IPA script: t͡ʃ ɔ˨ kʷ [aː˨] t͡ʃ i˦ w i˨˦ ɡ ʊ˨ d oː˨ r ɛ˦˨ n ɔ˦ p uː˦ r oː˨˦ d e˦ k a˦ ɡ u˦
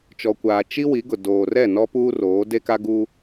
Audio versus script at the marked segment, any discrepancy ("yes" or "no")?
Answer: no